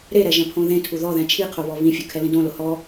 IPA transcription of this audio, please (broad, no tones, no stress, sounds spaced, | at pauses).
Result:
ɾ e ɾ ɛ ʒ ɛ̃ pʰ õ ð ẽ tʰ u ð ɔ ð ɛ̃ t͡ʃʰ i qʰ o β ɔ β ĩ fʲ ʊ kʰ ɛ l ĩ d õ l ʊ h ɔ